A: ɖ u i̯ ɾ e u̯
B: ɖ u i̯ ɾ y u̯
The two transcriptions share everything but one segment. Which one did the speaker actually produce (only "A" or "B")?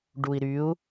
B